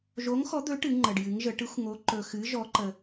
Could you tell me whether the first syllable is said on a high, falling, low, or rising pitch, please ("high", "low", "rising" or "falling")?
rising